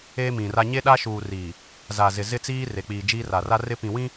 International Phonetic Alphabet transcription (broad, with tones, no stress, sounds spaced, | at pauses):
eː˦ m ĩ˨ r a˦ ɲ e˦ ɗ a˦ ʃ uː˨ r iː˨ | z a˨ z ɪ˨ z ɪ˦ t͡s iː˦ r e˨ k͡p iː˨ d͡ʒ iː˦ r a˨ r a˦ r ɪ˦ p ĩ˨ w ĩ˦